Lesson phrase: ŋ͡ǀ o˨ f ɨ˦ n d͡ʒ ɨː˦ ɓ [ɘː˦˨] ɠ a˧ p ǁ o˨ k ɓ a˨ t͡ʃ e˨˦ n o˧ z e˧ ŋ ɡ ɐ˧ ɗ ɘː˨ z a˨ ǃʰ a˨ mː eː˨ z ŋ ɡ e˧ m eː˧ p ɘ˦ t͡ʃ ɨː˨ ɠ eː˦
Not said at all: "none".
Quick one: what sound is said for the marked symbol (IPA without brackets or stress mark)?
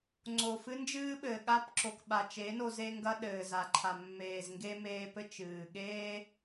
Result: ɘː˨